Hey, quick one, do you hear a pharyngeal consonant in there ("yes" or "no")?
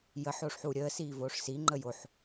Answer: yes